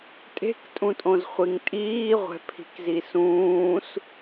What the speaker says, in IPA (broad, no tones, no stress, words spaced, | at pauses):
tʼe̤ktʼũtʼõzχʷiŋ tʼiːʁʷɛ̤pʰi̤kzi sũːs